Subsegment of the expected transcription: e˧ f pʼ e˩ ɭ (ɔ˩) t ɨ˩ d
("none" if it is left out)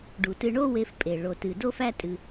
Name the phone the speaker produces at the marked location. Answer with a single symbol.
o˩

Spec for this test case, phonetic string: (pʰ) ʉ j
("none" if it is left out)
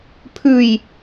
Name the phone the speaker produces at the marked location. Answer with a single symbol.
pʰ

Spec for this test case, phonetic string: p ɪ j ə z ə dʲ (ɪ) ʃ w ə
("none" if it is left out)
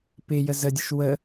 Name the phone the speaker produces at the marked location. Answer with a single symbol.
ə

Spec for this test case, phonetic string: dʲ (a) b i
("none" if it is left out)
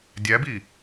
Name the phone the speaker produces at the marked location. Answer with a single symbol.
æ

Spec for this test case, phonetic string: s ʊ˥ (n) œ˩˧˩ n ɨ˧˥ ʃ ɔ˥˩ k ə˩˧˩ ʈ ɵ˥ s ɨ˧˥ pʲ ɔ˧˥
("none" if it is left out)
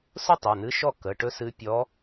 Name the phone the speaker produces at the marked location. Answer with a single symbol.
tˤ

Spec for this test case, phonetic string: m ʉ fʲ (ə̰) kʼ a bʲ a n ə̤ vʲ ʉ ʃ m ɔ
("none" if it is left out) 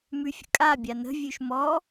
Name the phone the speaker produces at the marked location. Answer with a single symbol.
ə̰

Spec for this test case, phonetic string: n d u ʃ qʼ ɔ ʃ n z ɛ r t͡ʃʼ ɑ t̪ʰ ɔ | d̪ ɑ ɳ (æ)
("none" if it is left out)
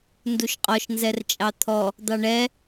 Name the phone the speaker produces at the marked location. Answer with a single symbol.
ɛ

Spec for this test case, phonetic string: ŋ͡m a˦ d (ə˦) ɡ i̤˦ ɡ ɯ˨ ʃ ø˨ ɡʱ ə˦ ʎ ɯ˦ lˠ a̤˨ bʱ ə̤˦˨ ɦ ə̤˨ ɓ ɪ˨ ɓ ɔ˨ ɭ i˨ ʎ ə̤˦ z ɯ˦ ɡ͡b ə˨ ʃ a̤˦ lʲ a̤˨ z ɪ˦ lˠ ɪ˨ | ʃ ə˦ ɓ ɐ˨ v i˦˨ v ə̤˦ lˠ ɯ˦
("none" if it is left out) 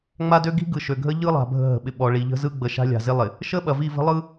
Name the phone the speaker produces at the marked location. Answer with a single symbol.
ø˦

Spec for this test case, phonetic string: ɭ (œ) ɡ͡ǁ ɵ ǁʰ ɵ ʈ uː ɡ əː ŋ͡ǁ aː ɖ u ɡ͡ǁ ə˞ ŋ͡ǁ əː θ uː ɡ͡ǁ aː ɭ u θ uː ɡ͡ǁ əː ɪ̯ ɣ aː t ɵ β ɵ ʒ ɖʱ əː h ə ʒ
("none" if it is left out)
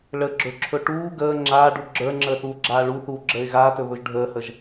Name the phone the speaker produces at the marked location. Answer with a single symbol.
ə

